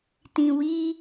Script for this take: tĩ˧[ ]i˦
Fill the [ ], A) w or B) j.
A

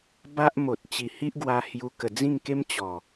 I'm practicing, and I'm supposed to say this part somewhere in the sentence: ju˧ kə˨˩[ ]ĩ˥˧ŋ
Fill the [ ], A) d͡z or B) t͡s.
A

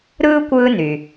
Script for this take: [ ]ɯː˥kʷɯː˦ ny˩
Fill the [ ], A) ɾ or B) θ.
A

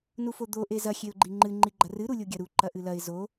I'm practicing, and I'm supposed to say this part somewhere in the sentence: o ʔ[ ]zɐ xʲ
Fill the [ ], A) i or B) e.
B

